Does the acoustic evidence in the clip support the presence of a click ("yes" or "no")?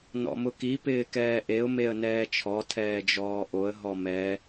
no